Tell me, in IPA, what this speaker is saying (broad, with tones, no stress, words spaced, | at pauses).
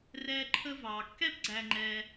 rɛː˦ǃʰə˥ vɑː˩ kːɛ˥pɡ͡ǀæ˨ŋ͡ǃɛː˨